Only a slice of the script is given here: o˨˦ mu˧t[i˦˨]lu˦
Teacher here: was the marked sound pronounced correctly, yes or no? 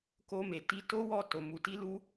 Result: no